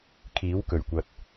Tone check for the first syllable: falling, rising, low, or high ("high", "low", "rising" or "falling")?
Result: rising